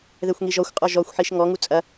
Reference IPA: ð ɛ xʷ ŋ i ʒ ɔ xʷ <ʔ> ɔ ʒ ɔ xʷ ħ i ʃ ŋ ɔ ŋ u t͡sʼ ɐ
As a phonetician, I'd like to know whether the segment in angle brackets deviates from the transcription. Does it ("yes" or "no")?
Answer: yes